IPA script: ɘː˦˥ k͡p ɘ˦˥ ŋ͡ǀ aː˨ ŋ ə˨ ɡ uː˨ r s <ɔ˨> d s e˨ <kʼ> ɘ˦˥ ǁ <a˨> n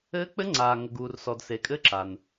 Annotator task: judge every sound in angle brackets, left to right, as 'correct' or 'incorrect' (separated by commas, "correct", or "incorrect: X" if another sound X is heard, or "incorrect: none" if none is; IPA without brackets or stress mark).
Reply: correct, correct, correct